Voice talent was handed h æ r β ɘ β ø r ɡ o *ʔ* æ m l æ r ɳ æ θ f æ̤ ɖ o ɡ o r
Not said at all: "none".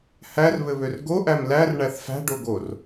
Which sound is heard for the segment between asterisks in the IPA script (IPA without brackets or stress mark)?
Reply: ʔ